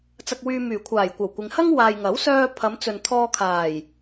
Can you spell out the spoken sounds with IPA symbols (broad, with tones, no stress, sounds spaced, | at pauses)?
t͡s ɐ˧ k̚ w yː˧ m yː˨˩ kʷʰ aː˨˩ j kʷ ɐ˨˩ w kʷ ɪ˨ ŋ h ɐ˥ ŋ w aː˨ j ŋ ɐ˨˥ w s œː˧ pʰ ɐ˨˧ m t͡s ɵ˨ n t̪ʰ ɔː˧ kʰ aː˨˩ j